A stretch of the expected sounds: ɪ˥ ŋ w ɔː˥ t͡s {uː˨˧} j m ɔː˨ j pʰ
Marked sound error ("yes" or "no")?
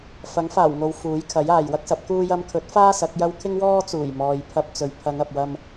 yes